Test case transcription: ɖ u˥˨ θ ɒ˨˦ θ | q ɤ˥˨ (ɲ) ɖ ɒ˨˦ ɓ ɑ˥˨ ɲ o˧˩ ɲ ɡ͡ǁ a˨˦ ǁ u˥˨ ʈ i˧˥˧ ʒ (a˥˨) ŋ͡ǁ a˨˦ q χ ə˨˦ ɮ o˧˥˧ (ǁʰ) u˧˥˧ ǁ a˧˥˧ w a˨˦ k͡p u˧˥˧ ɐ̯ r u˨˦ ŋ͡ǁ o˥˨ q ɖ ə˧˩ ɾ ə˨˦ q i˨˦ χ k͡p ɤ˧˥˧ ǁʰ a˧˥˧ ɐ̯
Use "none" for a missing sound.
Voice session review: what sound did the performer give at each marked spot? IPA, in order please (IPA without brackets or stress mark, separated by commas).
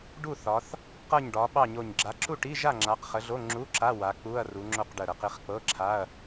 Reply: ɲ, a˥˨, ŋ͡ǁ